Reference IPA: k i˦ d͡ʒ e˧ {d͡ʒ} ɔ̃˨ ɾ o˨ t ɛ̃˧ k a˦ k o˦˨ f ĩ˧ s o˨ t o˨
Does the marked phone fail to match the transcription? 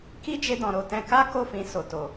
yes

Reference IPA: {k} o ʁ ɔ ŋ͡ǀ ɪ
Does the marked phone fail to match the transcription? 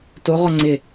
yes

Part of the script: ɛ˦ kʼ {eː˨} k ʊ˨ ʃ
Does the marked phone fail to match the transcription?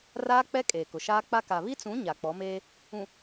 no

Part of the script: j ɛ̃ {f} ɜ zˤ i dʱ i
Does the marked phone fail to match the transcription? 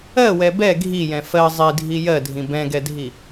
no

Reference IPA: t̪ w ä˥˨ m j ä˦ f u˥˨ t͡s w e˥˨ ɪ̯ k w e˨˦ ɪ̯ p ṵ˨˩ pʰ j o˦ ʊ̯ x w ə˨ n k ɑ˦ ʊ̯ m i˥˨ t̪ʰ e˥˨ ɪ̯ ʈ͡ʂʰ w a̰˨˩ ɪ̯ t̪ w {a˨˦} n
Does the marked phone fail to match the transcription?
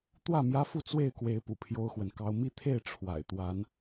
no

